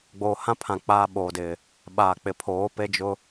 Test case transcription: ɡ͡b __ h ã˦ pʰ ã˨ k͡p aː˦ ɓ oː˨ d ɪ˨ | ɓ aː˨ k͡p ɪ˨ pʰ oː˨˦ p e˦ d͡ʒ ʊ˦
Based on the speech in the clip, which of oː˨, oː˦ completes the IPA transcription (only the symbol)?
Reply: oː˨